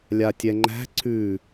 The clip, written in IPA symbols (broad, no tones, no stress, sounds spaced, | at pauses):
lʲ a tʲ ɛ ŋ͡ǃ æ̤ ǀ ʉ